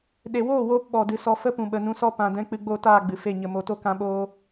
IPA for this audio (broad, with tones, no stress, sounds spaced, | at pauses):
ɗ e˨ w oː˦˨ w oː˧ p ɓ ɔ˨ d ɨ˨ s ɔ˧ f ə˦ p ũ˨ ɓ ə˨ n ũ˧ s ɔ˦ p ã˨ d ɛ̃˦ k͡p ɨ˧ ɡ͡b o˦˨ t aː˦˨ ɡ͡b ɨ˨ f e˦˨ ɲ ə˧ m o˨ t o˦ k ã˧ ɓ oː˧